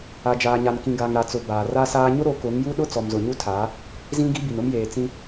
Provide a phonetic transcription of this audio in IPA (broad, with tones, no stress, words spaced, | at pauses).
a˨d͡ʒaː˨ɲa˨nkĩ˨ ɡa˨ŋɾa˨t͡sʊ˨ baː˨ra˦saː˦ ɲʊ˦ɾo˨˦ kʊ˨˦ŋju˦ɗʊ˦ t͡sɔ˨mzʊ˨ɲu˦tʰaː˨˦ | zĩ˦ɡi˦ bi˨nʊ˦mjeː˨ t͡sĩ˦